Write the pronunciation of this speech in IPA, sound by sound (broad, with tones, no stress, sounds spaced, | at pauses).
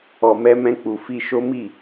ɔ˨ m ɛ˧ m ɛ̃˧ k͡p u˨ f i˧ ʃ o˦ m i˦˨